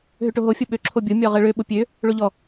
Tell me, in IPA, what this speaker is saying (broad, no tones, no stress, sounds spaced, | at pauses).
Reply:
ɦ ø ʈ o ɦ o fʲ o ɓ ø ǁʰ o bʲ o mʲ ɔ ʁ ə ɭ ø ɓ ʊ pʲ ø | ɭ o ʎ ɔ